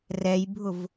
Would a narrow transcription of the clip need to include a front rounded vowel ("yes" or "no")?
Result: no